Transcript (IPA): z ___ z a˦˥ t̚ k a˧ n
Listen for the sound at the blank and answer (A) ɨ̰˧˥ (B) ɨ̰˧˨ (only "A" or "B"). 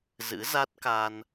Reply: A